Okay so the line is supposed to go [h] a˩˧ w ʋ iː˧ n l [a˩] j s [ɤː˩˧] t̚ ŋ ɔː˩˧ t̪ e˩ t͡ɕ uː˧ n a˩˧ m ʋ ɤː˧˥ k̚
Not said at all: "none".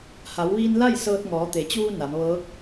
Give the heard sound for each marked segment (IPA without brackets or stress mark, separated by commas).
h, a˥˨, ɤː˧